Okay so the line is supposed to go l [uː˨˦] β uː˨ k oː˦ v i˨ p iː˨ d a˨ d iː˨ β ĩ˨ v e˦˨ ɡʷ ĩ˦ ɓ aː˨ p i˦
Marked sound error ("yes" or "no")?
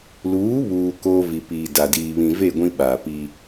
no